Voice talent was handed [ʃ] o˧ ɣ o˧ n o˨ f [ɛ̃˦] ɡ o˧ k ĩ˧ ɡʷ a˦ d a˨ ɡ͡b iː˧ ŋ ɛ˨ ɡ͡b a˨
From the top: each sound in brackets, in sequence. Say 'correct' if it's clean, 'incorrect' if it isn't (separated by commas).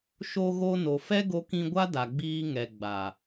correct, incorrect